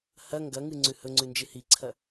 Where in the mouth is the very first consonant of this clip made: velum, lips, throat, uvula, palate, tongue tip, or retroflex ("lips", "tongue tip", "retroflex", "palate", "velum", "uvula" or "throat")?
throat